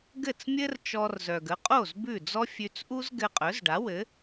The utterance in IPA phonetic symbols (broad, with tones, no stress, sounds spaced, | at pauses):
ɡ ɘ˥˩ t͡s mʲ ɘ˥ r t͡ʃ ɔ˧ r z œ˩ ɡ ə˩˥ qʼ o˥˩ z b ʉ˥˩ d͡z ɔ˥ fʲ ʉ˧ t͡s ʔ u˥ z ɡ ɘ˧ qʼ œ˩˥ z ɖ a˩˥ w ɘ˩˥